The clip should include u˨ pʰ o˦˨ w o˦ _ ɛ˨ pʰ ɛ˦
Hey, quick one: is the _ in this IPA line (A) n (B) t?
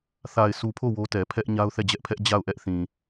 B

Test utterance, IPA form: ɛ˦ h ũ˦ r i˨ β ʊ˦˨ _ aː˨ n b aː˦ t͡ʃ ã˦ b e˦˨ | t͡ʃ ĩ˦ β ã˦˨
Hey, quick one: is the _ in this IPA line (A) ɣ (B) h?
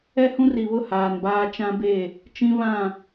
B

